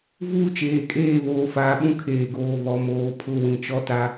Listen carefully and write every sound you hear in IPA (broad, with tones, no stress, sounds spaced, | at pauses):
v uː˦ t͡ʃ eː˨ kʼ eː˦˨ β oː˨ f aː˨ ɓ ũ˦ kʰ eː˨ ɡ oː˨ β ɔ˨ m oː˨ pʰ ʊ˦˨ w ĩ˨ t͡ʃ ɔ˦ t a˦